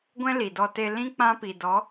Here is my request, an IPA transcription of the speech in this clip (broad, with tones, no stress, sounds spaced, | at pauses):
ɡʷ ɛ̃˦ l i˨ d ɔ˧ t e˧ l ĩ˦ k͡p ã˦ p i˨ d ɔ˨˦